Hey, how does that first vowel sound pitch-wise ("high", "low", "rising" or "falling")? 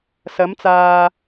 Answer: rising